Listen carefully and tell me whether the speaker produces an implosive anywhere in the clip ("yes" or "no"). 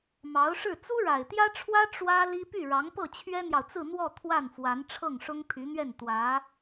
no